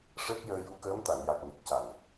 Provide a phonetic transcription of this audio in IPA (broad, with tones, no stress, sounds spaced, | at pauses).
ʂ əː˦˥ k̚ j əː˧ j u˧˥ k əː˧˥ m t̪ a˨˩˨ ŋ j a˨˩ k̚ ɲ ə˨˩ k̚ c a˨˩ n